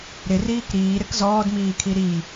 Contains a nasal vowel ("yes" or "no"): no